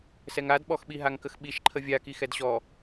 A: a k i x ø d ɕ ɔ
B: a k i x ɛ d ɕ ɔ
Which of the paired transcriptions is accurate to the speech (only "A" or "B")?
B